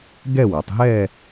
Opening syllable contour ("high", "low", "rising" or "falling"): falling